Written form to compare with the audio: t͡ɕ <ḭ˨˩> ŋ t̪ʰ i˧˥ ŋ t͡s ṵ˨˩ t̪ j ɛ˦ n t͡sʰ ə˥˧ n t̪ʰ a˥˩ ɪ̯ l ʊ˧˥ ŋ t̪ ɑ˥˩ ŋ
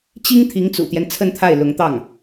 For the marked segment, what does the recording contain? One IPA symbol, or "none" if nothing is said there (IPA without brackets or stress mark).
i˥